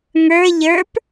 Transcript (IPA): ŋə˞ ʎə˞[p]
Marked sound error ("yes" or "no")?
no